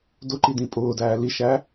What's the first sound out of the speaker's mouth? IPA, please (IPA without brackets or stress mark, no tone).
d